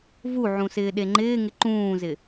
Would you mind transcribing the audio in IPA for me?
vuʕũ sɪːɗeŋ͡ǃɪːŋɪ ǃũːzɪ

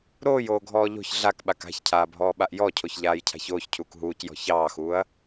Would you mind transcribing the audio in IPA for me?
ɾoːjoːɡʱɔː ʎo̤ç ɮakɓak a̤çcʰaːbʱɔːɓaʔ jɔcʰoçʎaːjcʰa̤ç oːçcʰuːk ɦuːcjɔ̤ çɑːxuːɐ̯

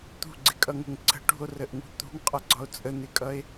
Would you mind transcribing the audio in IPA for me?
t̪ṳɡ͡ǀɪkʼʌŋə̤ŋ ǀə̤ ʈṳo̯rəʔŋṳ t̪ṳŋqʼʌɡ͡ǀɒo̯ t͡sʼən̪ɪkʼʌe̯

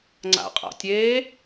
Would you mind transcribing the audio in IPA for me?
ŋ͡ǀa̰qʼa̰tʲeː

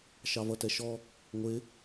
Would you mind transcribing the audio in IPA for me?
ʃɑvʌtɛʃɔ | ŋʷɪ

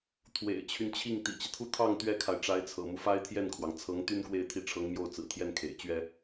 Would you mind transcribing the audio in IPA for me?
t̪ʰwḛ˨˩ɪ̯t͡ɕʰy˦nt͡ɕʰi˥˩ŋ t̪ḭ˨˩t͡ɕi˦t̪ʰu˥˧ t̪ʰɑ˥˩ŋ t̪ɥɛ˥kʰa˨ɪ̯ ʈ͡ʂa˧˥ɪ̯t͡sʰɤ̰˨˩mu˦ fa˥ɪ̯t̪ʰjɛ˥˩nkʰwɑ˩ŋ t͡sʰɤ˧˥ŋt̪y˥n kwe˥˧ɪ̯t̪ʰi˥˩ ʈ͡ʂʰɤ˧˥ŋmjo˥˩ʊ̯ t͡sɹ̩˨˩t̪ʰjɛ˥˩n kʰḛ˨˩ɪ̯t͡ɕɥɛ˥

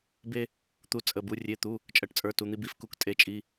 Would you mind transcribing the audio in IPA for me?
be˥ | t̪u˥t͡sʼə˧˥˧bu˥ rʲe˧˥˧t̪u˧˥˧ | t͡ʃʼɜ˥ʈt͡sʼə˞˧˥˧tu˧˥˧n̪i˥ bi˧˥˧fku˥ktʼe˧˥˧t͡ʃʼi˧˥˧

